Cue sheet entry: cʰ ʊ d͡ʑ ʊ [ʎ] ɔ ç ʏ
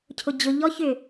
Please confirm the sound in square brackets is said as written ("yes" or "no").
yes